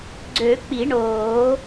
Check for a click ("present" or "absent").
present